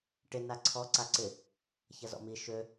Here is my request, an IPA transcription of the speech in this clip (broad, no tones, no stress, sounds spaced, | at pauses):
ʈ ɪ n a ǀʰ ɔ ǀ a ǀ ɪ | ç ɐ z ɔ̰ m i ʃ ø